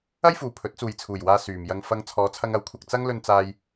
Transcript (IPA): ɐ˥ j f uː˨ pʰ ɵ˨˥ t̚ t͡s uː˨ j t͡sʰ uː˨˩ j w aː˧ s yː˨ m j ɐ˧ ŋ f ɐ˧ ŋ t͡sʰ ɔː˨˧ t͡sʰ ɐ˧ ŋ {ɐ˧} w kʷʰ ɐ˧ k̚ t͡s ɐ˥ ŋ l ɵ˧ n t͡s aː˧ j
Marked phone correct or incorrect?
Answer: incorrect